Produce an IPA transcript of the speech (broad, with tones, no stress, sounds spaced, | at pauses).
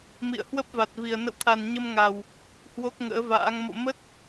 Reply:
m ḭ˧˨ ə̯ h w ə˦˥ p̚ v a˨˩ t̚ v i˨˩ ə̯ n ə̰˧˨ w t̪ʰ a˨˩ n ɲ ə˧ m ŋ a˨˩ w | h w o˦˥ k̚ ŋ ə̰ː˧˥ v a̰ː˧˥ ŋ m o̰˧˨ m ə˦˥ t̚